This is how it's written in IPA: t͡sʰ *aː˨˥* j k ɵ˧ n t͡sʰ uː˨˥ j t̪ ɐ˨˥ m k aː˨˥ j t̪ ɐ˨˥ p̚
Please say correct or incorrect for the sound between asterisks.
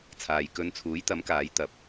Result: incorrect